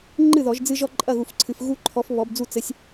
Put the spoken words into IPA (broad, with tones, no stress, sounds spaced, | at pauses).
ŋ͡ǃ ɨ˥˨ ð ɔ˨˩˦ ʒ d͡z ɨ˦ ʒ ɔ˦ ǃʼ ɐ˥˨ ɣ u˨˩˦ f ǀʰ ɨ˨ f ɣ u˦ ǃʰ ɔ˨˦ f β ɔ˨˦ b d͡z u˥˨ t͡s ɘ˨˦ sʲ